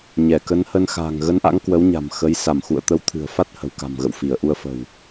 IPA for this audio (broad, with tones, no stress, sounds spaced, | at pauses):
ɲ ɛ˧˩ k ə˨˦ n h ə˧ n x a̤ː˨˩ ŋ ɣ ə˨˦ n ʔ a̰˧˥ ŋ k w ə˨˦ w ɲ a̤˨˩ m x ə˨˦ j s a˧˩ m x ṵ˧˨ ə̯ t̪ ə˨˦ w t̪ʰ ɨ̤˨˩ ə̯ f a˦˥ t̚ h ə̤˨˩ w k a̤˨˩ m ɣ ə̰˧˨ w f i˧˩ ə̯ ʔ u˧ ə̯ f ə̤˨˩ w